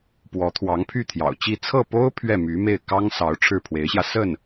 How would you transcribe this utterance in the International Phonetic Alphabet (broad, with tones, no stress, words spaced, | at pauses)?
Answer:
pwɔ˧˥ t̪ʰwɑ˧˥ŋpʰy˥˩ t̪ʰjɑ̰˨˩ʊ̯t͡ɕi˥˧ t͡sʰɤ˥˩po˥ʊ̯ pʰɥɛ˥˩my˧˥me˥˩ɪ̯ kɑ˥ŋsɑ˧˥ʊ̯ ʈ͡ʂʰɻ̩˥˩pʰwe˧˥ɪ̯ɕjä˧ sə˥˩n